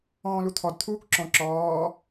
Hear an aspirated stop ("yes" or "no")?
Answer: yes